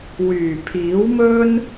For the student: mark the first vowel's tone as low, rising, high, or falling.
low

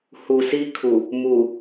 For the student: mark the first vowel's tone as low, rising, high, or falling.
low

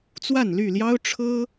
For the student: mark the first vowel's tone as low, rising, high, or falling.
falling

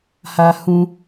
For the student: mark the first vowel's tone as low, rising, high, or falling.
high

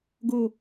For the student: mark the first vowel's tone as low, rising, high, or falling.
falling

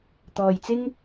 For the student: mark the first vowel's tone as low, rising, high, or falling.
low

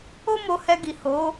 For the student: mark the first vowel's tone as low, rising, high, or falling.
high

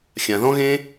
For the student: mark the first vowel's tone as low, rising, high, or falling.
low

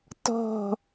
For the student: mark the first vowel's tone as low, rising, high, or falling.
falling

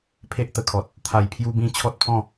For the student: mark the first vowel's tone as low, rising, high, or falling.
high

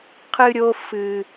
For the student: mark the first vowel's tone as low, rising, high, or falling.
high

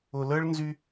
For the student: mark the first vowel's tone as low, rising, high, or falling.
low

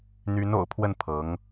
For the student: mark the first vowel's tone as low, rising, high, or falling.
rising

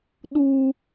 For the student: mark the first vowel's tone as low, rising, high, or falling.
high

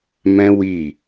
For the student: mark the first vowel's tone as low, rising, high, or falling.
high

